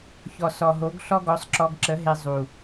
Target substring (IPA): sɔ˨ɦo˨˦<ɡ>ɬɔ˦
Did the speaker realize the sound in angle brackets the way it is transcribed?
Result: yes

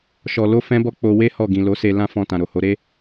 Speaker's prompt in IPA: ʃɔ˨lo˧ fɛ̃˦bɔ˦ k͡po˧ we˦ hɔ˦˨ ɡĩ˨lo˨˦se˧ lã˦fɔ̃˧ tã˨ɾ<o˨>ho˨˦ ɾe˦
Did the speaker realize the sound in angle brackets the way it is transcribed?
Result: yes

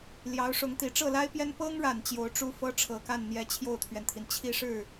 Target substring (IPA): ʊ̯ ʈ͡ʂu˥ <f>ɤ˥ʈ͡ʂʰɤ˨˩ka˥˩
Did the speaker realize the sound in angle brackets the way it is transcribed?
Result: yes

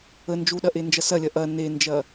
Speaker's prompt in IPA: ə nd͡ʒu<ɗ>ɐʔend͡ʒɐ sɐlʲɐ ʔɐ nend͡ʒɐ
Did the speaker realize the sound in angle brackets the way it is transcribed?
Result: yes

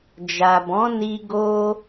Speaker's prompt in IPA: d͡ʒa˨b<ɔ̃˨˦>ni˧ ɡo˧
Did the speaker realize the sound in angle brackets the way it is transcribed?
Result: yes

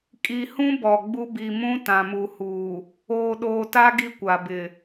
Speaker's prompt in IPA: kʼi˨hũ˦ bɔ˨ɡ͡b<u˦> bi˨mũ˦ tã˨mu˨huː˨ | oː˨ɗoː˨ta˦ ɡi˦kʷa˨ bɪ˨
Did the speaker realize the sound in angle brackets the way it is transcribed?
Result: yes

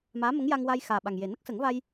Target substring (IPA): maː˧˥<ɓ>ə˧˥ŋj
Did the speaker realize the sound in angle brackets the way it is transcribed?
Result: no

